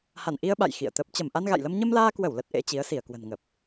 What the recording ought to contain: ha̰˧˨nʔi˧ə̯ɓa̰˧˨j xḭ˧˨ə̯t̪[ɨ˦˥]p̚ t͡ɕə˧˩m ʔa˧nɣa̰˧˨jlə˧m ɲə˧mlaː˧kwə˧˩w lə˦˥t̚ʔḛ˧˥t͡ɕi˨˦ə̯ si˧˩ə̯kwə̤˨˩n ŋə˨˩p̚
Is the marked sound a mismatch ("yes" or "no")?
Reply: yes